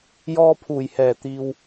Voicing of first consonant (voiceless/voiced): voiced